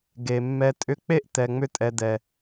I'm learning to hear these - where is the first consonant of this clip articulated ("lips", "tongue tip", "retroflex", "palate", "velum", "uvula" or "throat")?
velum